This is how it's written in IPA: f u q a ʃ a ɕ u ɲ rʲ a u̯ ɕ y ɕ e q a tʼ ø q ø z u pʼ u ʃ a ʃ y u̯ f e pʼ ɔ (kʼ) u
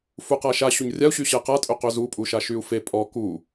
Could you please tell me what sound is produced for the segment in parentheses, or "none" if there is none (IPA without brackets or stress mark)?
k